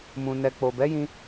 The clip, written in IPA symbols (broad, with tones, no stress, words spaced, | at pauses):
mũ˨ nɛ˧ k͡po˨bɛ˨˦jĩ˧